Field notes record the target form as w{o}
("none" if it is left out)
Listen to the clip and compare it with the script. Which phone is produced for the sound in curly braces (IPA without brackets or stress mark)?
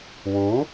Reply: u